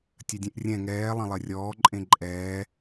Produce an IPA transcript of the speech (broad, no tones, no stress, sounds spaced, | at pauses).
tʲ ɐ dʲ ẽ ʔ rʲ ɛ̃ ŋ ɛː lˠ ɐ̃ lˠ ɐ rʲ ɔː ǃʼ ẽ ǃʼ ɛː